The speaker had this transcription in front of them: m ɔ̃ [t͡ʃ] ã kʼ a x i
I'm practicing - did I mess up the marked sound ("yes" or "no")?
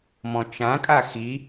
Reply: no